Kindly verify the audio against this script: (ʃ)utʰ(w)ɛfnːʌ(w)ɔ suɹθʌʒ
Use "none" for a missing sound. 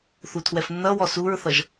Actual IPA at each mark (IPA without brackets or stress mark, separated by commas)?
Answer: θ, w, w